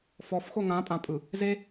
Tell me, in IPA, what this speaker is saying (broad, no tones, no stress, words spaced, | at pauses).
fɔfxo ŋãpʼãpʼɯ | ze